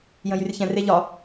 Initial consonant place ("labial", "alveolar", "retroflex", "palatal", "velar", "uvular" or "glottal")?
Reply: palatal